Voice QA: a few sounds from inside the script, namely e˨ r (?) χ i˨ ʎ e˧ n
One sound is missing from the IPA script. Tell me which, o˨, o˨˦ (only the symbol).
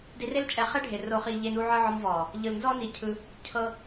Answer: o˨